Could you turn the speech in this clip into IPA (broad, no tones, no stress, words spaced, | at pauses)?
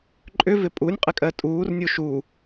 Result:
ǃʼʏvɪ pʼunʲqʼɪkʼɜ tʼuːrnʲu ʃuː